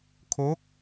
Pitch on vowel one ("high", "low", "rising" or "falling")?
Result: rising